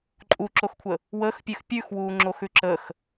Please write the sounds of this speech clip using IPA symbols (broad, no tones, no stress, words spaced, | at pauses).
ǃʼuǁoxkʷʰə | wəxpʲʉx pʲʉxwuːŋ͡ǁoxʉ ǁəx